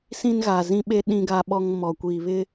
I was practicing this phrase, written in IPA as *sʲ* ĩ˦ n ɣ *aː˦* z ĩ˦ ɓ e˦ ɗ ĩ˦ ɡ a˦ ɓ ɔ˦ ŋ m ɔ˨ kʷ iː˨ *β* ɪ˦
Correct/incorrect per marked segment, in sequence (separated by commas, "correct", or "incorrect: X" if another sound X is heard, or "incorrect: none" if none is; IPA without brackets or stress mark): incorrect: s, incorrect: aː˨, correct